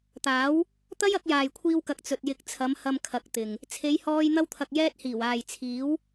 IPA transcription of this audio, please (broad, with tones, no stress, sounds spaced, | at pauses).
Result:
t̪ aː˨˥ w | t̪ ɐ˥ j ɐ˨˥ k̚ j aː˨ j kʷʰ iː˧ w k ɐ˨˥ k̚ t͡s ɵ˨ t̚ j ɪ˨˥ k̚ t͡sʰ ɐ˨˧ m h ɐ˧ m kʰ ɐ˨˥ k̚ t̪ ɪ˨ ŋ | t͡sʰ e˨˧ j h ɔː˧ j n̪ ɐ˧ w t̪ʰ ɐ˨ k̚ j ɛː˧ t̚ h iː˨˩ w aː˨ j t͡sʰ iː˨˥ w